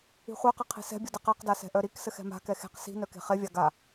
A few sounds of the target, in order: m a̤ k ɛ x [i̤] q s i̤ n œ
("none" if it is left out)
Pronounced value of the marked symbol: e̤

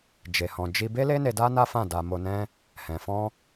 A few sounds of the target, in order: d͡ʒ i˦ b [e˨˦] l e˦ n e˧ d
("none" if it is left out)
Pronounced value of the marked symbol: e˦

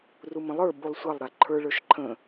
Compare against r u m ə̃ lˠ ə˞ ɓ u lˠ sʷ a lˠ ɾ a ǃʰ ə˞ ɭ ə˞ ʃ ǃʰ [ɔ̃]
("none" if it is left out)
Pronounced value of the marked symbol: ə̃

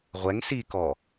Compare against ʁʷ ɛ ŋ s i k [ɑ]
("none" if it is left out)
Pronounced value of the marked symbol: ɔ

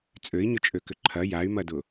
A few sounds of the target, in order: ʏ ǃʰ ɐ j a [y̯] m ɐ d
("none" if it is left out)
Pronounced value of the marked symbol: y̯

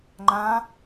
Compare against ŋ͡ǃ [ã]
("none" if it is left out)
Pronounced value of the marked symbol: ã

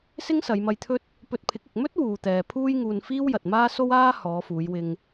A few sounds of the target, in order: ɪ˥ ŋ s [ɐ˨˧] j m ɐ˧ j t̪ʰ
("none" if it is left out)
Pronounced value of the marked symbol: ɐ˨˧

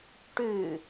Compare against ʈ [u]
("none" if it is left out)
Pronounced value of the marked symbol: ʉ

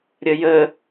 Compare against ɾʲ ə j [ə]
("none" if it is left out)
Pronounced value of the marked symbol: ə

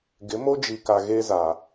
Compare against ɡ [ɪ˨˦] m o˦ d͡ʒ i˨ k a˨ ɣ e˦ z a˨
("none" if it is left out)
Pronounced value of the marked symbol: ɪ˨˦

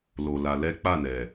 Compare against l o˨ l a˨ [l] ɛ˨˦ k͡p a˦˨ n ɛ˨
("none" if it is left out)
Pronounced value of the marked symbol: l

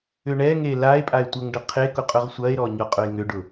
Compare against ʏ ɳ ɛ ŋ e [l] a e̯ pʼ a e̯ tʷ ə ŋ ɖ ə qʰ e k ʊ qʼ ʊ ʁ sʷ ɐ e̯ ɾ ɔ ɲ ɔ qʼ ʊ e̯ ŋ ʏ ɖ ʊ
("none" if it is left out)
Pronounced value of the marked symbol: l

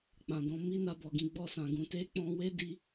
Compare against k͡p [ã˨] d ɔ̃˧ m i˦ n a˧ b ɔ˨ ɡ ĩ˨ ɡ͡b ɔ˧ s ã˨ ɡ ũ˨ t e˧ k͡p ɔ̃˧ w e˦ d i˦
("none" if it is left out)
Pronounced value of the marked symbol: ã˨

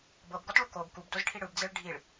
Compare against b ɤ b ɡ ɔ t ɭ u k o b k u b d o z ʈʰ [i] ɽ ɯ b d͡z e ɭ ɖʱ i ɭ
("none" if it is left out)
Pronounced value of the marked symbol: i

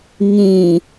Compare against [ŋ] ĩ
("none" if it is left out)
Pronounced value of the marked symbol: ŋ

